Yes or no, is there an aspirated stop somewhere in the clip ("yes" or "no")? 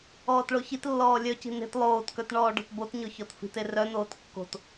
no